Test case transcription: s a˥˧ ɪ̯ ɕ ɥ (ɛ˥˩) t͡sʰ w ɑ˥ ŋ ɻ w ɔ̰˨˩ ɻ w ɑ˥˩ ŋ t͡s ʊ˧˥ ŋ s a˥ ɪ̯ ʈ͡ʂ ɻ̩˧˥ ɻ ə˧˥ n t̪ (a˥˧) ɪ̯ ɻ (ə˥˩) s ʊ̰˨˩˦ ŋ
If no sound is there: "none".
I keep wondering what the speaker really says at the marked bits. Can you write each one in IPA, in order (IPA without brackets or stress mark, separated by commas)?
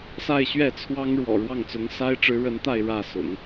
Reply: ɛ˥˩, a˥˧, ä˥˩